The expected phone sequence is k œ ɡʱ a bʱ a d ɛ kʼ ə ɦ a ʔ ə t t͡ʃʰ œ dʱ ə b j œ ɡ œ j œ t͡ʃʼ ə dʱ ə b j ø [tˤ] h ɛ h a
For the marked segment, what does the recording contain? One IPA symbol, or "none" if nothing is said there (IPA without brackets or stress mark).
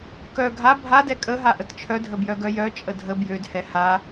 d